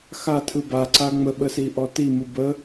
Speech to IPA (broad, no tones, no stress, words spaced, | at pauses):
xatʰɯ baǀa ŋ͡məɓəsiʔɔ timɯ bə